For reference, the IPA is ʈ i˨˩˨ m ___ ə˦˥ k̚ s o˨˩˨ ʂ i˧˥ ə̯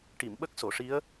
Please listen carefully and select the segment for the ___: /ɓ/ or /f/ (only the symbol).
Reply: ɓ